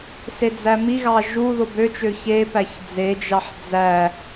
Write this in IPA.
s e d͡z æ m i ɣ ɑ ʒ u ð o b ø t͡ʃ ø ç e p æ ç d͡z e d͡ʒ ɑ ħ d͡z æ

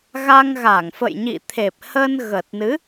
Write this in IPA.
ɣ a˧ ŋ ɣ a˧˩ ŋ f ə̰˧˨ j ɲ ḭ˧˨ t̪ʰ e˨˩ p̚ h ə˧ n ɣ ə˨˩ t̚ n ɨ˨˦

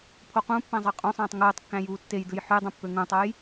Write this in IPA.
pʰ o q ũ pː æ̃ zˤ ɑ qʼ õ sˤ æ̃ː tˤ ŋ uː tˤ kː æ̃ j uː tː e j d ɯ j ħ y dˤ õ pː ø ŋ ũ tˤ o j

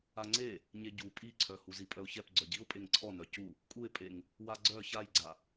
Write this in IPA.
a ŋ͡ǀ e | ɲ e ɟ u pʼ i ǀʰ œ h u z i pʼ œ ʊ̯ ç ɛ p ɡ͡ǀ œ ɟ i ʊ̯ pʼ e ŋ ǀʰ ɔ n œ c u | kʼ u ɪ̯ pʼ e ŋ | w a ɡ͡ǀ œ ç a j ɡ͡ǀ a

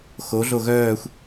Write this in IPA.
x o ɮ o ɣ œː xʷ

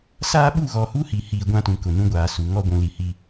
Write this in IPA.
s aː˦ ɓ u˦˨ ɣ ɔ˨ h u˦ h i˨ h i˨ ɡʷ ã˦ t ũ˨ k ʊ˨ n ũ˦ ɡʷ aː˨ s u˨ ŋ ɔ˦ ɡʷ ũ˨ l i˨ h i˦

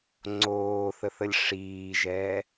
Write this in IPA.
ŋ͡ǀ oː θ ə θ ə lʲ ʂ iː ʒ ɛː

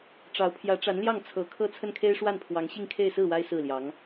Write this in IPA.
ʈ͡ʂ ɑ˧˥ ʊ̯ pʰ j ä˧˥ ʈ͡ʂ a˧˥ n l j ɑ˥˩ ŋ t͡sʰ ɤ˧˥ kʰ ɤ˥ t͡sʰ ə˥˩ n kʰ e˥ ɪ̯ ʂ w a˥˩ n pʰ w ɑ˧˥ ŋ ɕ i˥˧ ŋ kʰ e˥˧ ɪ̯ s ɹ̩˥˩ w a˥ ɪ̯ s ɹ̩˥˩ l j ɑ˧˥ ŋ

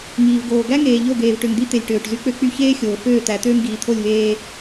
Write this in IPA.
ŋ iː˨ v ɡ oː˨ ɡ æ˦ ŋ eː˨ ʎ o˦˨ ɡ eː˨ v ʈ ø˨ ŋ d̪ i˦ t̪ e˨ lʲ ʈ øː˨ ʈ z y˦ k͡p ø˦ k͡p y˦ ç eː˦ xʲ oː˨ f øː˦˨ t̪ æ˨˦ t̪ øː˦ m ɡ iː˨ t̪ʰ o˦˨ lʲ v eː˦

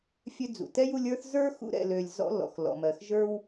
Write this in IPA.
fʲ ø˦ d͡z ṵ˩ t ɛ˥ j u˦ lʲ ə˞˦ θ z ə˞˥ x ṵ˦ ɾ ɛ̰˨ l ø˨ lʲ z ɔ̰˦ l ɔ̰˩ x l ɔ̰˨ m ɜ˨ x ʒ ə˞˥ w

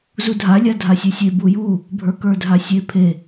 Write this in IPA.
z u dʱ a lʲ a dʱ a sʲ e sʲ e b u j u | bʱ ə˞ k ə˞ dʱ a sʲ e pʰ e

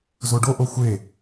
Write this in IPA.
z o ɖ o ʔ o xʷ e

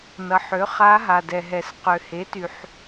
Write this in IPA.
n ʌ˩ ħ ø˩˥ χ a˧˥ ɦ a˩ d ɛ˩ ɦ ɛ˩ s q ø˩ h e˩˥ t y˩ ħ

